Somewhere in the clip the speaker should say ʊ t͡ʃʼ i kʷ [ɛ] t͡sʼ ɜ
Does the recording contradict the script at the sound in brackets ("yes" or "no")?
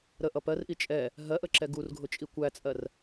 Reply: yes